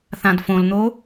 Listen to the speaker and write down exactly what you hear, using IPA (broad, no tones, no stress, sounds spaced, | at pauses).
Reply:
θ ã d f õ l n̪ o